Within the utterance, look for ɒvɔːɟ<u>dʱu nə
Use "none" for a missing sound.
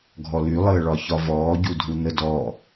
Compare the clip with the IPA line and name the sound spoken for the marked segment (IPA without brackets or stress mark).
u